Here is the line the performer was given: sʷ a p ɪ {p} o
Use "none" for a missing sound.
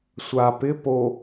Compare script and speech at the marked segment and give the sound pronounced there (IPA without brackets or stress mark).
p